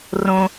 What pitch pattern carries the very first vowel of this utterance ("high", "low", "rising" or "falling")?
low